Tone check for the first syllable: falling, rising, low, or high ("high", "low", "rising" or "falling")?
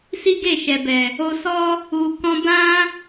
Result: high